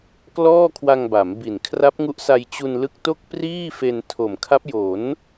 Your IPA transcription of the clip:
k l ɔː˥˩ kʰ w a˧ ŋ b a˩˦ m b i˨˩ n kʰ r a˦˥ p̚ ŋ u˦˥ ʔ s a˧ j t͡ɕ u˧ n l ɯ˦˥ k̚ t o˥˩ k̚ p r iː˥˩ f e˧ n tʰ o˨˩ m kʰ a˦˥ p̚ j o˩˦ n

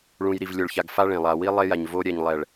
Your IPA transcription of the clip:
ɭ ũ˨ j ɾ i˨ v lʲ o˨ ɭ ç a˨ ɡ f a˦ ɭ ẽ˨ lˠ a˨ w i˦ lˠ e˦ j a˨ ɲ v o˦ ɾʲ ɛ˨ ɲ lˠ ɛ˨ ɭ

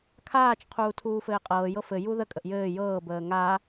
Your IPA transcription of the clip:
kʰ aː t͡ʃ qʰ uː tʰ uː f ɘː qʼ ɤː j ɤ f ɘ j u ð ə kʼ ə ʔ j ɘː j ɤː b əː ŋ a

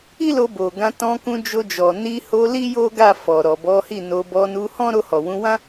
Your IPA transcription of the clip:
i˦ l o˧ b o˨ ɡ ã˧ t ɔ̃˧ k ũ˧ d͡ʒ o˧ d͡ʒ ɔ˨ n i˧ h o˧ l i˦ j o˦ ɡ a˦˨ f ɔ˨ ɾ ɔ˨ b ɔ˨˦ h i˦˨ n o˧ b ɔ˧ n u˧ h ɔ̃˦ ɾ o˧ h ɔ˨ w ũ˨˦ w ã˦

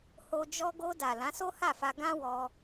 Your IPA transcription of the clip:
h o˧ d͡ʒ ɔ˧ ɡ o˧ d a˨ l ã˨˦ s o˦ h a˦˨ f a˧ ɡ ã˦ w ɔ˧

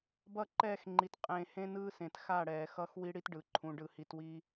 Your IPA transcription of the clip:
b ʌ˦˨ ǃ ɛː˦˨ x ŋ͡ǃ i˨ t qʼ ẽː˨ h ẽ˦ n ɯː˦ s ẽ˨ t x a˦˨ ɽ ɛː˨ x ʌ˦ x w i˦ ɽ i˦ t ɖ ɯ˨ ǃʰ ũ˨ ɖ ɯ˨ h i˨ t w i˦

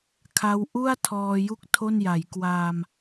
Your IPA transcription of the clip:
kʰ a˦˥ w ʔ u˥˩ a̯ tʰ ɔː˧ j u˥˩ k̚ tʰ o˥˩ n j a˩˦ j k w aː˧ m

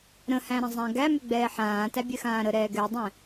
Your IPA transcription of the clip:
ɾ ə̃ h æ̃ ɾ ə̃ zˤ æ̃ ɡ æ m ʏ ɡ͡b ɛː ħ ãː t æ bʲ ɛ x ãː ɾ ə ɾ ɛː ɡ ɛ dˤ ɛ̃

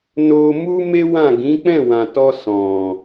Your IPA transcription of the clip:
n o˧ m u˦ m e˦ w ã˦˨ ɡ ĩ˨˦ k͡p ɛ̃˦˨ w ã˨ t ɔ˧ s ɔ̃˨

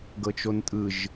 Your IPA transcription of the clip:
ɡ ɤ t͡ʃ o n tʼ ɯ ʒ

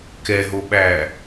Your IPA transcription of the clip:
k ɛ ɦ o ɓ æː

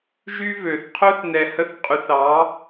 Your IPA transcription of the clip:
ʒ y˦ v ø˨ θ qʰ ɵ˦ θ n ɛ˧ h ə˦ θ qʼ y˧ θ ɑ˨˦

